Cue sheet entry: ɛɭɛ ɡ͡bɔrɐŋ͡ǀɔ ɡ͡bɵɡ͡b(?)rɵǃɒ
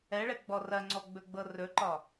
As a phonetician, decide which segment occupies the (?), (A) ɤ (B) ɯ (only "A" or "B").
A